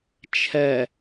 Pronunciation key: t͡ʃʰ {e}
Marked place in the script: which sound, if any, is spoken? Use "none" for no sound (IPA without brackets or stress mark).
ɛ